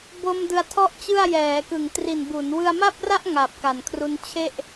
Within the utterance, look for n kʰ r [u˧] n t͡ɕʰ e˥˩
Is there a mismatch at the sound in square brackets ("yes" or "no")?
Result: no